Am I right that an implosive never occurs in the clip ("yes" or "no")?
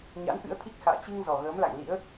yes